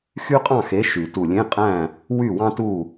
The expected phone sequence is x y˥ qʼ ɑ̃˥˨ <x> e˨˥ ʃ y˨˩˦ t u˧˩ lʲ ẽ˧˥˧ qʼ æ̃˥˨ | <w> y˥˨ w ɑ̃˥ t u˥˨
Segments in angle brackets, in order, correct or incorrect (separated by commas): correct, correct